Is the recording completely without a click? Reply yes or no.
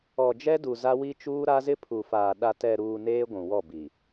yes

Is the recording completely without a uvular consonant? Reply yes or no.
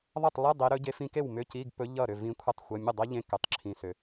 yes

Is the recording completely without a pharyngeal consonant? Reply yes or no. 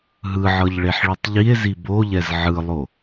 no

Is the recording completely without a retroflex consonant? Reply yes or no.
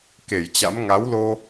yes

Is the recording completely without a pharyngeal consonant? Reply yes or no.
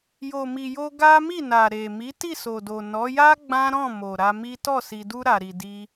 yes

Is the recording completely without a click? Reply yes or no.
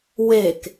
yes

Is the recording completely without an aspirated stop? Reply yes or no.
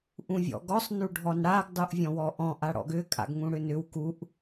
yes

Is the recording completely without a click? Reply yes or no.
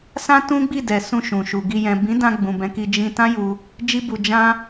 yes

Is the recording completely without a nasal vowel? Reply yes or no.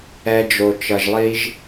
yes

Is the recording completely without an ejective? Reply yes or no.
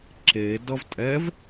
no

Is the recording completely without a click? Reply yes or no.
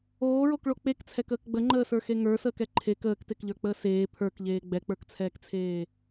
no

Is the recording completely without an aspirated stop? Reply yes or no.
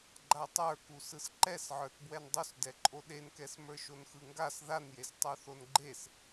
yes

